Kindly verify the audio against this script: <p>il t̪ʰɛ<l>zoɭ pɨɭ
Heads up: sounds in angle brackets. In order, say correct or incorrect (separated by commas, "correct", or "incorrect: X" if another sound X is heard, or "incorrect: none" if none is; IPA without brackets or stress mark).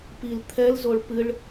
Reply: correct, correct